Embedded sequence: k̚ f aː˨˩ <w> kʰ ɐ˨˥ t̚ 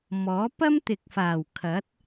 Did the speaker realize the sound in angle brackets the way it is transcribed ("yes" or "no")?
yes